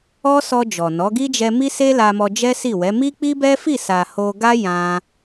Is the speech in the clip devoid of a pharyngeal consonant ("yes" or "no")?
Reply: yes